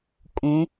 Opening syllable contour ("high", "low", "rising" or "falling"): rising